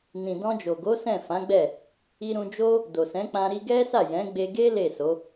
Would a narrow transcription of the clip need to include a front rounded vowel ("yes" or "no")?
no